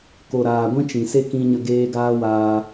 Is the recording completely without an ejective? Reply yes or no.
yes